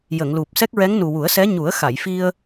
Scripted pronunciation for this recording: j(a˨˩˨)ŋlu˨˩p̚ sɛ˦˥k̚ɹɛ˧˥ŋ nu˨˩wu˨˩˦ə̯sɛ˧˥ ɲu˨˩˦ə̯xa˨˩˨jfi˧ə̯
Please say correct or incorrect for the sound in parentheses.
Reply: incorrect